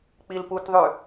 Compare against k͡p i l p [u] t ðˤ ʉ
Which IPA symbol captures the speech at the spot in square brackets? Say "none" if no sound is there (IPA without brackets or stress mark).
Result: u